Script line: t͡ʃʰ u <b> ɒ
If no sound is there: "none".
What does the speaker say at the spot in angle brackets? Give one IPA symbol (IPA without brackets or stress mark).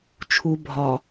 bʱ